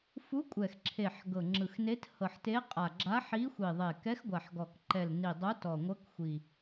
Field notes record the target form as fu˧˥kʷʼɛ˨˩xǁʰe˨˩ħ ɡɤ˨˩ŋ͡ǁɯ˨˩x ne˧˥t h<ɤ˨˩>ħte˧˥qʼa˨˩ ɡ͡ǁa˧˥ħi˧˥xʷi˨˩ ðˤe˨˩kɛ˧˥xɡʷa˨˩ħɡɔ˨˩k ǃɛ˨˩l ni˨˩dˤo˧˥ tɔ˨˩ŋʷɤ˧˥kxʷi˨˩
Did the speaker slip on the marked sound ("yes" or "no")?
no